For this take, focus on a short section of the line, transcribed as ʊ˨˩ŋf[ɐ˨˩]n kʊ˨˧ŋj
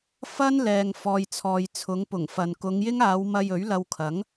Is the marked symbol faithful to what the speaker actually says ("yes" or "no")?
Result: no